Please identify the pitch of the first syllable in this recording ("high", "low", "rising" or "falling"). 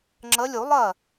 rising